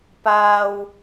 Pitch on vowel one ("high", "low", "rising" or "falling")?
high